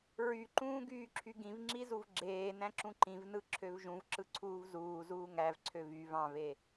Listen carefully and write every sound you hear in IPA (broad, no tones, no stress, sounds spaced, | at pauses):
ɹ y ǃ ũː ɡ yː ǁʰ y ɡ ĩ v ŋ͡ǁ i z u v ɡ͡ǁ eː n æ̃ ǁ ũ ǃ ĩ v n ɯ ǁʰ ø v ʒ ũ v ǁ ɯ ǀʰ uː v z uː z uː ŋ æ v ǀʰ ø v y v ɑ̃ v e